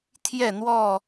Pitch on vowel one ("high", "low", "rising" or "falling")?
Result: falling